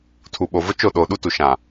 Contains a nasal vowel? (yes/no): yes